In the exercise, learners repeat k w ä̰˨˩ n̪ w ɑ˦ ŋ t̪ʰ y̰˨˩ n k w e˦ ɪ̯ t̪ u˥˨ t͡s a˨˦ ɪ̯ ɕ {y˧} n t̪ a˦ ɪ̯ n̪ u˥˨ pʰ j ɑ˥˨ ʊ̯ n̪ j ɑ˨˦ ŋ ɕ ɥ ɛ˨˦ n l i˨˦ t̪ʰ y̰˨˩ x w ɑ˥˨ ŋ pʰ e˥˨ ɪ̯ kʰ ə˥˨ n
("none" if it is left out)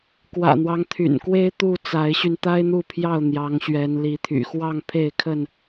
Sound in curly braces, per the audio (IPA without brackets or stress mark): y˧